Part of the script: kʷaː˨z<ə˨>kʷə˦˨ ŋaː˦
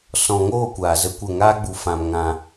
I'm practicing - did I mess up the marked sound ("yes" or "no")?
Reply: yes